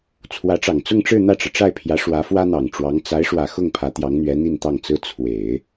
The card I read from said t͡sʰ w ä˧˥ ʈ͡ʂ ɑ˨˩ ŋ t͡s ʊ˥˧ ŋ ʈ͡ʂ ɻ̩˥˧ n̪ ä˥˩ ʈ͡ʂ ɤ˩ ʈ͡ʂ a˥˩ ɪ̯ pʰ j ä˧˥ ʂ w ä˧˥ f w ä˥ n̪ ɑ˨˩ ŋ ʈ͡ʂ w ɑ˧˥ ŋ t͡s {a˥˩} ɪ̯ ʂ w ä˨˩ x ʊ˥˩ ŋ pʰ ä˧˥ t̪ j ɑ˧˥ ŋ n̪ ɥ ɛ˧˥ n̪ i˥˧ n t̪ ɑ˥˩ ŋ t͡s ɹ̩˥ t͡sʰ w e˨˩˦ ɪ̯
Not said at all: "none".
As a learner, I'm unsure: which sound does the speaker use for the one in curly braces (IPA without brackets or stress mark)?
a˧˥